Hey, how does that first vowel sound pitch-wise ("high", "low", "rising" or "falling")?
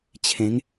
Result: rising